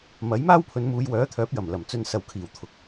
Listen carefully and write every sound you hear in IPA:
m ɐ˨˥ j m aː˥ w pʰ ɵ˨˧ n m uː˨˧ j w œː˨˥ t̪ʰ œː˨˥ p̚ j ɐ˨˩ m l ɐ˨˩ m t͡s ɵ˧ n s ɐ˨ w kʰ iː˨˩ w t̪ʰ ʊ˨˥ k̚

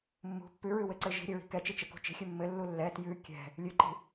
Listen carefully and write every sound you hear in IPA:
mː ṳ pː ʉ ɹ ʉ w ɘ ǀ ɘ ʒ i̤ ɾʲ ɘ ɹ i̤ k ɛ t͡ʃ i t͡ʃ ɘ k ṳ t͡ʃ i̤ xʲ ʉ mː ɘ lː u lː ɛ t j ʉ kʲ ɛ̤ | lʲ ʉ ǃ i̤

